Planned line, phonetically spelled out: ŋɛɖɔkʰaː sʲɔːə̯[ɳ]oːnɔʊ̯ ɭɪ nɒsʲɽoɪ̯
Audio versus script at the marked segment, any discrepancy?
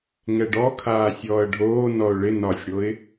yes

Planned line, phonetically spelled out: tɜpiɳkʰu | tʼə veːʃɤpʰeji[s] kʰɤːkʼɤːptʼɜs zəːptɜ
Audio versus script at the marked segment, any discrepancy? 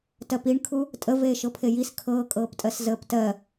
no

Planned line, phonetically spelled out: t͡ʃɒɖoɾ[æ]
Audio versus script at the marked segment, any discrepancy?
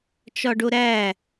no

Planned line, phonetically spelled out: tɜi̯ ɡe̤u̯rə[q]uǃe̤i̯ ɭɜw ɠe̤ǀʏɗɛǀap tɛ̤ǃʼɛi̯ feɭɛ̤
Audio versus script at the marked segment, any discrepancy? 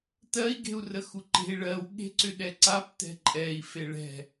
yes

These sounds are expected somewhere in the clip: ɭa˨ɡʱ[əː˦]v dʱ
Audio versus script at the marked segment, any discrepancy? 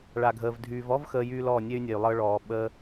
yes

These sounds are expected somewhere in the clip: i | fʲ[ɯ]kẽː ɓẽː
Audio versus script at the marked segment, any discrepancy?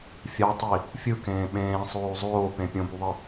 no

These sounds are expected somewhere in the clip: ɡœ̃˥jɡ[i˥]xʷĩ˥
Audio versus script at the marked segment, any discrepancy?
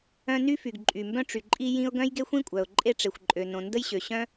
yes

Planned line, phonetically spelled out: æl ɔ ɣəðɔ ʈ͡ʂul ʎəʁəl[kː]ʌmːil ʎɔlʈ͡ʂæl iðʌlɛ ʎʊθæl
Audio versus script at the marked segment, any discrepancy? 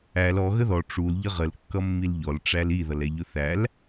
no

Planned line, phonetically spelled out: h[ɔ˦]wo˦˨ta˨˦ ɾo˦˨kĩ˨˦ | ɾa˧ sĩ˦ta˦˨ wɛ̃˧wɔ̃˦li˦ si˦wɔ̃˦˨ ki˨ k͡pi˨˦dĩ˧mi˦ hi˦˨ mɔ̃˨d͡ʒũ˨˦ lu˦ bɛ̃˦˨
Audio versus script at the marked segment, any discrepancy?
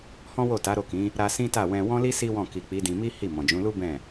yes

